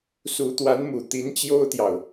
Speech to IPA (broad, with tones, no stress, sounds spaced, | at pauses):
s u˧˥ t̪ w a˧˥ n m u˨˩ t̪ i˧˥ n t͡ɕ j o˥ ʊ̯ t̪ j ɑ˨ ʊ̯